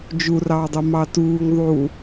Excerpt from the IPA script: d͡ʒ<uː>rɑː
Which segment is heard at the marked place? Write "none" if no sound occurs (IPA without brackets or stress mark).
u